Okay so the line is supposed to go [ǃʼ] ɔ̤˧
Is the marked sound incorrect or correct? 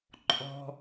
correct